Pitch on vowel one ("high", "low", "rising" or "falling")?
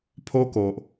high